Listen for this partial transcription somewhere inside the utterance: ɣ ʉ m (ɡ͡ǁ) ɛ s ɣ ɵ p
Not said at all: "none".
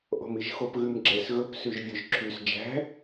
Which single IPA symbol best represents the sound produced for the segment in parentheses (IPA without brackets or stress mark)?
ɡ͡ǁ